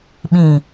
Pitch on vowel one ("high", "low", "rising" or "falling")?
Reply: low